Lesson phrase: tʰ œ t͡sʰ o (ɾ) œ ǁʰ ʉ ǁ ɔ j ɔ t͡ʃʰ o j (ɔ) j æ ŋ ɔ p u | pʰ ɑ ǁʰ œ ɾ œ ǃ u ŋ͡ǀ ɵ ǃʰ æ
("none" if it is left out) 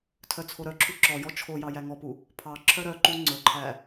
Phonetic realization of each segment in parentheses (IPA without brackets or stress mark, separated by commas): ɾ, ɑ